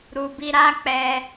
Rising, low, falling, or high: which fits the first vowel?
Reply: low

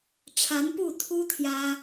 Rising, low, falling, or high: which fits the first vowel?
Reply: rising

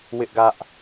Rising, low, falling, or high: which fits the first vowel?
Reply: high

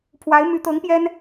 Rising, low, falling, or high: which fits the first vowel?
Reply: rising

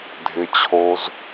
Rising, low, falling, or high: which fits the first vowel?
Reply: low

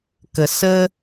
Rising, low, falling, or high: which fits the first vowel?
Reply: low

